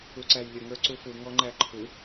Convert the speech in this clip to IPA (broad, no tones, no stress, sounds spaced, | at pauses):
u ǀ æ j lʲ ə ŋ ə˞ ǀ u f u ŋ ɔ ŋ͡ǃ æ ǃʰ u